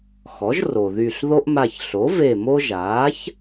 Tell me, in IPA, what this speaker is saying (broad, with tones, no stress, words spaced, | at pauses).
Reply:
xɔ˩˥ʒro˩ðy˧˩ɬ ðo˦ʔma˧˩çɬo˩˥ ve˧˩mo˦ʒaː˩˥ç